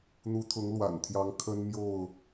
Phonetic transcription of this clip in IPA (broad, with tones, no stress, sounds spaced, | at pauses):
n̪ u˨˦ t̪ʰ ʊ˨˦ ŋ l w a̰˨˩ n t̪ʰ j ɑ˨˦ ŋ kʰ ə˦ n m j o˥˨ ʊ̯